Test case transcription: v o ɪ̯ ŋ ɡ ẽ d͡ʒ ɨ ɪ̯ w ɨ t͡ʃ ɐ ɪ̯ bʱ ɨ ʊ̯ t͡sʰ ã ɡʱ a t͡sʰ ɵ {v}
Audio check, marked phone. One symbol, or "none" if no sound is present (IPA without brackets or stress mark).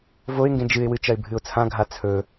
none